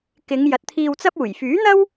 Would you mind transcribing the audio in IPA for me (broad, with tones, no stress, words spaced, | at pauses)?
kɪ˨˧ŋ jɐ˨t̚t̪ʰiː˧wt͡sɐ˥p̚ uː˨˩jfyː˨˥n̪ɐ˥w